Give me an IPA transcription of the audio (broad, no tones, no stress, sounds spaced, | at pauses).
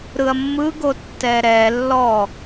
ɾ ɯ ɐ̯ mː ɯ ɡ o tː ɛ ɾ ɛ lː ɔ